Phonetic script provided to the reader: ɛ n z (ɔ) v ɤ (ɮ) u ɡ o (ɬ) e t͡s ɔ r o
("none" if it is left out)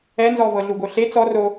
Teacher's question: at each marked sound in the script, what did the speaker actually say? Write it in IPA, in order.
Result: ɔ, ɮ, ɬ

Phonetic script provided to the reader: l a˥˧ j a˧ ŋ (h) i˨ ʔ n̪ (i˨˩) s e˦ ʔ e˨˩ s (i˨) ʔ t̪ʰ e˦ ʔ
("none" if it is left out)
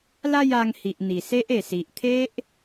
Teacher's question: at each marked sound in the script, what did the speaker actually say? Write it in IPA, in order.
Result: h, i˨˩, i˨

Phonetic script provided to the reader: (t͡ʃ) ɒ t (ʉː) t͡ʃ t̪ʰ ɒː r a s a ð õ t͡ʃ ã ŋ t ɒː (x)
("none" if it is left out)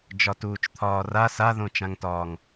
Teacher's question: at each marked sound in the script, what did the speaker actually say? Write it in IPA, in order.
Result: d͡ʒ, uː, ŋ

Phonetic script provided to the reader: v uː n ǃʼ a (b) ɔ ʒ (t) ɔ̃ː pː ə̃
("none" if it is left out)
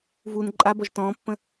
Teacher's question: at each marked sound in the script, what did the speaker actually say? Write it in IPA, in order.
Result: b, t

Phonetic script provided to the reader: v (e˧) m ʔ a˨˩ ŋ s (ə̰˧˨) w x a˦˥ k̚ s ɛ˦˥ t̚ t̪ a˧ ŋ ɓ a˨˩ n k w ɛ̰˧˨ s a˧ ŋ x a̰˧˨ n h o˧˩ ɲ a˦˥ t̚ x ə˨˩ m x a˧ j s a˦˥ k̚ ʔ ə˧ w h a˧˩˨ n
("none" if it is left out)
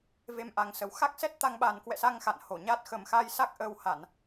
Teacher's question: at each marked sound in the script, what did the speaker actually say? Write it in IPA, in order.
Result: e˧, ə˨˩

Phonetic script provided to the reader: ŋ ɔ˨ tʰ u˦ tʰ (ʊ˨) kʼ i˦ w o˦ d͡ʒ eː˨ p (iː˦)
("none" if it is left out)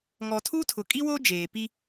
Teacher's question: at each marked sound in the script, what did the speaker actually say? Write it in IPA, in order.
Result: ʊ˨, i˦

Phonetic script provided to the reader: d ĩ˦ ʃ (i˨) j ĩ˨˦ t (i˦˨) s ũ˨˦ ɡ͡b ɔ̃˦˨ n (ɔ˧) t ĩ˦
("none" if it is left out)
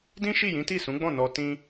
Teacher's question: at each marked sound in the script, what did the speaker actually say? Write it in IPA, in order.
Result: i˦˨, i˦˨, ɔ˧

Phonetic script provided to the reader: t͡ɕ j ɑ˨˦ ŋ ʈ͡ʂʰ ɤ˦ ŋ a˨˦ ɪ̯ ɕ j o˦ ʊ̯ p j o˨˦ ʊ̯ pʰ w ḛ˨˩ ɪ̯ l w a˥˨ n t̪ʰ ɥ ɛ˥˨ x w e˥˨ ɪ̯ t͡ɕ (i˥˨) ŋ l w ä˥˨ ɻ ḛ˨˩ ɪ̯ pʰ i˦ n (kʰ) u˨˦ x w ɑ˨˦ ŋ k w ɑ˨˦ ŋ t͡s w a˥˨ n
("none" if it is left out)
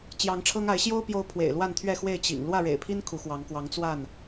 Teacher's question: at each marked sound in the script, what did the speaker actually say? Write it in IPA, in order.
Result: ḭ˨˩, kʰ

